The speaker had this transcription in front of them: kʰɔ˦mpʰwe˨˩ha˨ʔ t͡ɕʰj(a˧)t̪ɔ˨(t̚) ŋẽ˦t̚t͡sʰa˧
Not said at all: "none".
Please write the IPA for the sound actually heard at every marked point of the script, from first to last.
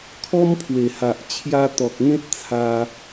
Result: a˧, k̚

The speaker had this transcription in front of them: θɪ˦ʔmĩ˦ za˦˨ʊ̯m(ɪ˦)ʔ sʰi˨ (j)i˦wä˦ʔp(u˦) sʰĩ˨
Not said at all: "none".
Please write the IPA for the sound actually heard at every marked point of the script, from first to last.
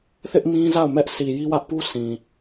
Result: ɛ˦, j, u˦

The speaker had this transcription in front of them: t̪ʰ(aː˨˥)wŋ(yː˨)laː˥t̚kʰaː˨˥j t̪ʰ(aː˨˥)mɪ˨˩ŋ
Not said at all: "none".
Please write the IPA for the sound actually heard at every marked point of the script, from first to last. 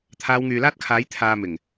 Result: aː˨˧, yː˨, aː˨

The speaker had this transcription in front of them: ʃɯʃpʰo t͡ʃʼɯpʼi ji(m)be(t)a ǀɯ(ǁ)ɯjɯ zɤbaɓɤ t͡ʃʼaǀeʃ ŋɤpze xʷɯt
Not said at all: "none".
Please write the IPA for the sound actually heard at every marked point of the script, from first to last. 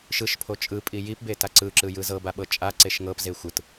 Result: p, t, ǁ

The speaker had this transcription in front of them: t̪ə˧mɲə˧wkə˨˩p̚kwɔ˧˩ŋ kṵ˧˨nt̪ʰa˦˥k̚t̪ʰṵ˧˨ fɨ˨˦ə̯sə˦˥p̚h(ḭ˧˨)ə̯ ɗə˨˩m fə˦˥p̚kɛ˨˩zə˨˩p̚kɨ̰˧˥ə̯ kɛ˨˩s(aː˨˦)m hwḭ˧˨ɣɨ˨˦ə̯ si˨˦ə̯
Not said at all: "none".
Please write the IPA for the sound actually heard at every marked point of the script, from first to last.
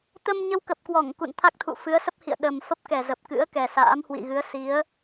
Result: ḭ˧˨, a̰ː˧˥

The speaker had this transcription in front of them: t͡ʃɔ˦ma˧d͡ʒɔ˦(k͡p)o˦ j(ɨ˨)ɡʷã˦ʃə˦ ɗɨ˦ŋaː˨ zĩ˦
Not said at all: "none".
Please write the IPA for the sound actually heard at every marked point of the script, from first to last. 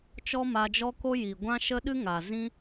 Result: k, i˨

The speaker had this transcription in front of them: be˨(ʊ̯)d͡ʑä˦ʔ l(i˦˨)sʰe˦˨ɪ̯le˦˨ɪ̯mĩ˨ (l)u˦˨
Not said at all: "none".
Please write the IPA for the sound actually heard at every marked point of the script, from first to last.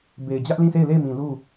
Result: ɪ̯, ĩ˦˨, l

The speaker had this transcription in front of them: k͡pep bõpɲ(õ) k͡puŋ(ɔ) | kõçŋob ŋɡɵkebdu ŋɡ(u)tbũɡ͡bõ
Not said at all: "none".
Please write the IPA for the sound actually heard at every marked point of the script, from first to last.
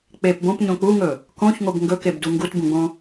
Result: õ, ɵ, u

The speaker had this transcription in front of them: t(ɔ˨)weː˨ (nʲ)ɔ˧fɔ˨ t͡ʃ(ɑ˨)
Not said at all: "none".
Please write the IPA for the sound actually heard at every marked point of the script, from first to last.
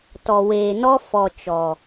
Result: ɔ˨, n, ɔ˨

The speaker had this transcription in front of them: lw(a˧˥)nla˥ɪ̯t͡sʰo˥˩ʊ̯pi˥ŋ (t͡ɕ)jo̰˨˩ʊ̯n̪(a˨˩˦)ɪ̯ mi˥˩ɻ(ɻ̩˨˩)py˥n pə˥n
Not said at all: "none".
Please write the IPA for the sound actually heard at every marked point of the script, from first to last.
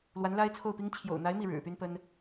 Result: a˧˥, t͡ɕʰ, a˧˥, ɻ̩˨˩

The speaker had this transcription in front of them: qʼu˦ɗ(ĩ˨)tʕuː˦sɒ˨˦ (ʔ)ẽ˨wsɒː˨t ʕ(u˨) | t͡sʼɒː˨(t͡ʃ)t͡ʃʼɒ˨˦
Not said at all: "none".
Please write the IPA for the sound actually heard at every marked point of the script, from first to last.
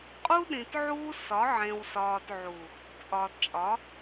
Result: ĩ˨, ʕ, u˨, t

